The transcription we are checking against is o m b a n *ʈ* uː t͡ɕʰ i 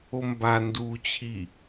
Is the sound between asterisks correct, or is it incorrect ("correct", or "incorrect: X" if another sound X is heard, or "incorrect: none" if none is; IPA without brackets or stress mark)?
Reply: incorrect: d